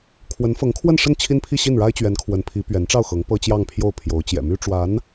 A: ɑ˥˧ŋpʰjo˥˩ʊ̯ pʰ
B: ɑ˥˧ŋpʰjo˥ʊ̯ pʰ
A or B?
A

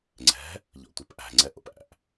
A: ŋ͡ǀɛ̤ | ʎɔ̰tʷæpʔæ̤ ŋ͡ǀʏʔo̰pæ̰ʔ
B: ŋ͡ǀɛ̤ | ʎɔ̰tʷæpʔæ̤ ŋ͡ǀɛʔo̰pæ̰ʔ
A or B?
B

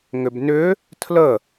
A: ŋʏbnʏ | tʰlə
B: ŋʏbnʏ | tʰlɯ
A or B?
A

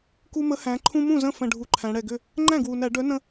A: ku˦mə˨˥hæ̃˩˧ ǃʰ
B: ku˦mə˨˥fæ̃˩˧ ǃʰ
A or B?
A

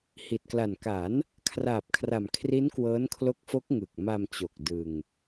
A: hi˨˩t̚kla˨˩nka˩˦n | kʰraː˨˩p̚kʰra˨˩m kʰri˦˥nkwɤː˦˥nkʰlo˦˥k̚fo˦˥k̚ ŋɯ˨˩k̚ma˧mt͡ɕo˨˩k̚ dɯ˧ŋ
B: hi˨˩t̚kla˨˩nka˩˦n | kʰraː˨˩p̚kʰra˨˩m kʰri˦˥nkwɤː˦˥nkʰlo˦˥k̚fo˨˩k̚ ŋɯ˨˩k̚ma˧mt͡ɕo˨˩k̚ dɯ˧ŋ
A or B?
A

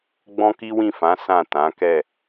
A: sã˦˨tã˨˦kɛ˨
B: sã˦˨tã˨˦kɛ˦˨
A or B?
B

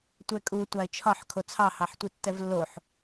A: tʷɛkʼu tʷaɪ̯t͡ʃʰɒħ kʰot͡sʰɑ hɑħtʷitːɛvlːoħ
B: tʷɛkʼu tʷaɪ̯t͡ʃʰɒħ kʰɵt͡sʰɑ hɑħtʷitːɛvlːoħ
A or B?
A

